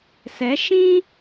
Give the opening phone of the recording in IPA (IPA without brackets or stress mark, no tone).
s